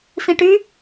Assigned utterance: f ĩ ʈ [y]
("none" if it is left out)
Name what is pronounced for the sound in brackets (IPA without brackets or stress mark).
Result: y